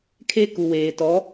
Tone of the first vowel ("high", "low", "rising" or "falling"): high